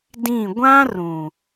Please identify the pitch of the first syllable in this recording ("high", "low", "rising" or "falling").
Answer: falling